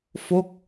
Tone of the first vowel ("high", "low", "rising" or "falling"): falling